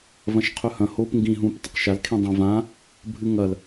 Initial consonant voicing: voiced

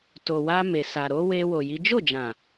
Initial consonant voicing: voiceless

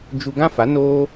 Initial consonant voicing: voiced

